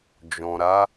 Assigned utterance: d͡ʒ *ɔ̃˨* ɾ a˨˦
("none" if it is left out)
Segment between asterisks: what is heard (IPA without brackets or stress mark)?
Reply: ɔ̃˨